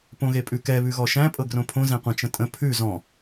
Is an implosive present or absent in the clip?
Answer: absent